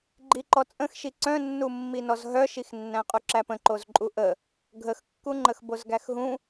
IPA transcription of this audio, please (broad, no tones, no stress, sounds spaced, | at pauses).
ɡ͡ǃ i ǃ ɔ t͡sʼ ə̃ x ʃ i ǀ œ̃ nː u mː i n ɔ z ɦ œ ʃ i x nː æ̃ qʼ u ǁ æ p ə̃ ǃ o z ǃʼ u ʔ ə | ɡʱ ə x kː u ŋ͡ǃ ə x b o z ɡ æ x ɦ ũ